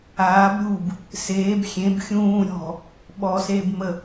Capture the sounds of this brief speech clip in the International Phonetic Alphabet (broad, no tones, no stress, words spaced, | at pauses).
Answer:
aːbɾʲuːb | seːb xʲẽb xʲũː ɾʲɔ̤ | ɓɔseːb mə